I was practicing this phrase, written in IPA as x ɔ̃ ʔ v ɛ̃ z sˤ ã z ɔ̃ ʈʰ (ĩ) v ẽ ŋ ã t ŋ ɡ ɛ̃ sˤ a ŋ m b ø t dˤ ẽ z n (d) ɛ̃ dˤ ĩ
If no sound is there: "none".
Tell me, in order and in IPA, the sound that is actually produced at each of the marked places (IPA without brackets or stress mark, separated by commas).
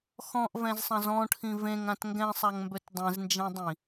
ĩ, d͡ʒ